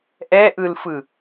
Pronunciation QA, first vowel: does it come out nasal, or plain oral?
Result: oral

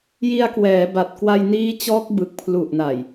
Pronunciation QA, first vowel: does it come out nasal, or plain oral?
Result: oral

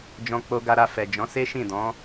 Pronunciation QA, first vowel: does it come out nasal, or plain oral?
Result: nasal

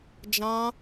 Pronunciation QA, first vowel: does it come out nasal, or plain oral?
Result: nasal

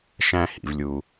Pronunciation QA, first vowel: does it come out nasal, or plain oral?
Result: nasal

